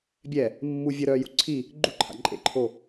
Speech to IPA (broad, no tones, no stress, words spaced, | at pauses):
bʲɛ | mːu vʲə ɾœju ǀʰi | ɡ͡ǃuǃʰa̰ ǃʼḛǃʰo